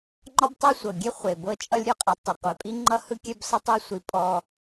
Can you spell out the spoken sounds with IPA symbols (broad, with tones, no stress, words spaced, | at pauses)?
ŋ͡ǃɒ˥btˤe˥sʷɤ˩ɡʲe˥ χʷe˩bɤ˥ t͡ʃʼʌ˥lʲɾʲɔ˧qʼi˩ tˤɯ˩qʷɛ˩pʼi˥ŋ͡ǃʌ˥ hɯ˥kʲɛ˥bsʌ˥tˤi˥ sʷi˧ pʼɔ˧